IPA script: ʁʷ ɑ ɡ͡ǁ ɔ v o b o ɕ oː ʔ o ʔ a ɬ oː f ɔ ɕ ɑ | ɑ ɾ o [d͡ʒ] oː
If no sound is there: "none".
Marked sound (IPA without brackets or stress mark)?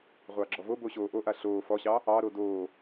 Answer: d